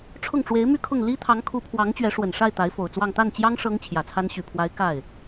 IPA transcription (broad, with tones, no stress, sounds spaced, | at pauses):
ʈ͡ʂʰ ʊ˥˩ ŋ ʈ͡ʂ w e˧˥ ɪ̯ m y˥˧ kʰ ʊ˥˩ ŋ l i˥ t̪ʰ ɑ˧˥ ŋ kʰ u˧˥ pʰ w ɑ˧˥ ŋ t͡ɕ ɥ ɛ˧˥ ʂ w ə˨˩ n ʂ a˥˩ ɪ̯ t̪ a˧˥ ɪ̯ f o˨˩ ʊ̯ t͡s w ɑ˥˧ ŋ t̪ a˥˩ n t͡ɕ j ɑ˥ ŋ ʂ ɤ˥ ŋ t͡ɕʰ j ä˨˩ t͡sʰ a˥ n ɕ y˨˩ pʰ w a˧˥ ɪ̯ k a˥˩ ɪ̯